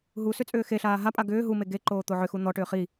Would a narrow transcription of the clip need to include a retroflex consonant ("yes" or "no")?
yes